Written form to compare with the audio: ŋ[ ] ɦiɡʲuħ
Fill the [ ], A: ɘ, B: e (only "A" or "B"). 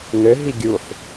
A